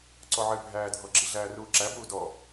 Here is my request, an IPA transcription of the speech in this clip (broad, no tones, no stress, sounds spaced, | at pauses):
ǀ ɔ ʕ ɘ bʱ æː dʱ ɔ ɡ͡ǁ i ɮ æː r uː ǁ æ b uː d ɔ